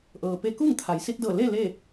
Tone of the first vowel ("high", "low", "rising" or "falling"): low